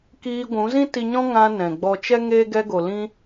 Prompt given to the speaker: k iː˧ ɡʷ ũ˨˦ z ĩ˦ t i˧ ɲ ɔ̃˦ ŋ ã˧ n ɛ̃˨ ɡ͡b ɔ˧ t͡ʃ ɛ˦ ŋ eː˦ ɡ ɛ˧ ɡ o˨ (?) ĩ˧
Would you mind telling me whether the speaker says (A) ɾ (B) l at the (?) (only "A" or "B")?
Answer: B